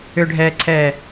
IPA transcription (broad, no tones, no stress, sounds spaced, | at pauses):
ʏ ɖʱ ɛː ǀʰ ɛː